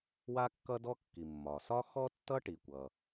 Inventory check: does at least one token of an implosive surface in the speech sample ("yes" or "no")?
no